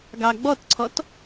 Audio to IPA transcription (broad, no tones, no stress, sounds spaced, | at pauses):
ɡ ɑ ɡ͡b ɔ t ǀʰ ɔ t